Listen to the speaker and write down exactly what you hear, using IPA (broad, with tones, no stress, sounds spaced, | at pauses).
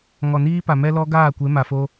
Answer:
ŋ ɔ˨ n iː˦ p a˨ m ɛ˦ l ɔ˦ ɡ aː˦˨ kʷ e˨˦ m a˨ f o˦